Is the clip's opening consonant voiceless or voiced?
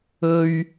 voiced